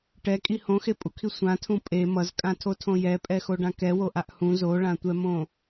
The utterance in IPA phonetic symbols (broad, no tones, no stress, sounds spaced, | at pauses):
ʈ ɛ kʼ i h õ x e pʼ u kʰ i sʷ ã tʰ ũ pʼ e m ʌ z kʼ ã tʰ o tʰ õ j ɛ pʼ ɛ x o ɖ ã k ɛ w o ʔ a ʔ h ũ z o ɭ ã tʷ ɛ m õ